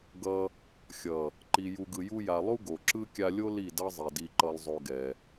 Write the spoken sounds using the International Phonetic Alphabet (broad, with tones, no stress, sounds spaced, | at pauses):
ɡ ʌ˧ | xʲ ʌ˨ | ǃ i˨ j u˨ ɡ ɯ˨ j u˧ j a˨ lˠ u˦ ɡ o˨ ǁ ɯ˦ kʲ a˧ lʲ o˦ l i˦˨ d ʌ˦ zˤ i˨ d i˧ ǃ ʌ˦ lˠ zˤ o˦ ɡ ɛ˧